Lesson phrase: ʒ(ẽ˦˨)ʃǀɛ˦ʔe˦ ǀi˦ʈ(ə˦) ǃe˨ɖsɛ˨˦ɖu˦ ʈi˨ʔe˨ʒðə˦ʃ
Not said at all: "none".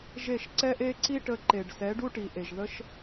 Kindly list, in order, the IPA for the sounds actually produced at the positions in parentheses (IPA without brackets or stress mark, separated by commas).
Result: e˦˨, ə˧